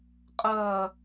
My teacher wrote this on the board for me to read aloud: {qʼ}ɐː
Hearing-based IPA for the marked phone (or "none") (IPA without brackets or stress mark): qʼ